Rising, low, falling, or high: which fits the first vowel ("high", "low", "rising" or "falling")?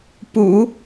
low